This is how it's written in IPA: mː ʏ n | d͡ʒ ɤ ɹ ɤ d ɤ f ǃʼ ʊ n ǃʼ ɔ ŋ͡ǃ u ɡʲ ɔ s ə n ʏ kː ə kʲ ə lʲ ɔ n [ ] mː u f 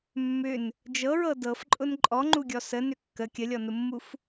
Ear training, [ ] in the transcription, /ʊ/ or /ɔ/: ʊ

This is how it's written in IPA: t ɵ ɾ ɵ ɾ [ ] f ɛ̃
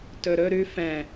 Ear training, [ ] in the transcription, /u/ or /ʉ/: ʉ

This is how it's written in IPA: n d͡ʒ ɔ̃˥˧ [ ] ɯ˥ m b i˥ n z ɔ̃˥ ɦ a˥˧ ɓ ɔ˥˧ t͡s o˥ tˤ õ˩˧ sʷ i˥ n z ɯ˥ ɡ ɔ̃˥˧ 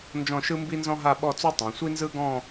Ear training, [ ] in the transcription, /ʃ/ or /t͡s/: ʃ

